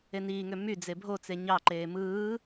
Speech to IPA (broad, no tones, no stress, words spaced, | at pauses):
eniːŋø my d͡zebʱot͡se ɲɑǃeː mɯː